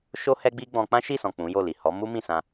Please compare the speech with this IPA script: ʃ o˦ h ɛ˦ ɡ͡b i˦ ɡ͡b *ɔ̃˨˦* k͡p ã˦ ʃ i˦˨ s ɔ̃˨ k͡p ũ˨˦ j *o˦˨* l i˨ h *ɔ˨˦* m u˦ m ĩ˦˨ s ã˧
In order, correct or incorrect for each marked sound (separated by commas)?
incorrect, correct, correct